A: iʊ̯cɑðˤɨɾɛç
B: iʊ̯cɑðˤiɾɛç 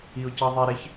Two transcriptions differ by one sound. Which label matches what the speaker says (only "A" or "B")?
B